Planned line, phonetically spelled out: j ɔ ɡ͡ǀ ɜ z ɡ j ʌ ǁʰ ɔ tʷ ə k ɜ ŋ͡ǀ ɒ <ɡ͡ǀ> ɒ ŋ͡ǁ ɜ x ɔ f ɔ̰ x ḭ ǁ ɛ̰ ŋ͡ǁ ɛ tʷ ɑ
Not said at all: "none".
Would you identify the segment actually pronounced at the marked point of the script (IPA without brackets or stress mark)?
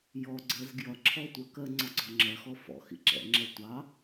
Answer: ɡ͡ǀ